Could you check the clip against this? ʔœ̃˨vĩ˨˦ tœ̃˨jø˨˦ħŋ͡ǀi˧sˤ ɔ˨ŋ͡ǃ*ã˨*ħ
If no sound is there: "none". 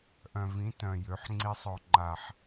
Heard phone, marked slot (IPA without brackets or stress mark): a˨